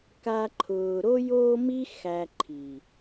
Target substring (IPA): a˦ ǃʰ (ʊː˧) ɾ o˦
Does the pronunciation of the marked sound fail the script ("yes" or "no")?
no